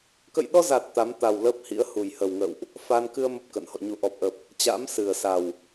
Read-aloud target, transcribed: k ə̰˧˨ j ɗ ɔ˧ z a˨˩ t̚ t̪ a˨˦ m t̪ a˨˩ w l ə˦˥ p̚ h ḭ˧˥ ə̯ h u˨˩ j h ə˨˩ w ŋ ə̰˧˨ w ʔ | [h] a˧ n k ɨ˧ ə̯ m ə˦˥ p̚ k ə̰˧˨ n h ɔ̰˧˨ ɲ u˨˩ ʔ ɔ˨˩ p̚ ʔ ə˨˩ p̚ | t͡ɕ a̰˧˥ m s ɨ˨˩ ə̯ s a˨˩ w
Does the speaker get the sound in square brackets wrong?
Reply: yes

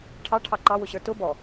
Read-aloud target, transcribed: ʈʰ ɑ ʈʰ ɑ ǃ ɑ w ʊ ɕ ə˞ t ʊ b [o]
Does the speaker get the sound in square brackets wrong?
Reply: yes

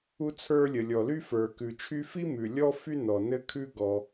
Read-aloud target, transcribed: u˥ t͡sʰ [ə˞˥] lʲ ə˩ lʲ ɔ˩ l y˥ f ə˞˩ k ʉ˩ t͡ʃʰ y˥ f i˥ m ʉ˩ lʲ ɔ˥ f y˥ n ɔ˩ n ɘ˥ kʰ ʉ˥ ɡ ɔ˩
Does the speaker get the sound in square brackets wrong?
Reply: no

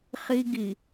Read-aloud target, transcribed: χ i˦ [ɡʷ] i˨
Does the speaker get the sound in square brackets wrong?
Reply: yes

